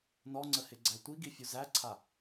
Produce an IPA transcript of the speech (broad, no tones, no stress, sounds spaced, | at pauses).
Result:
n ɔ ŋ͡ǀ ə h ɪ ɡ͡ǀ æ tʷ i ɡ i fʲ u z æ ǀʰ a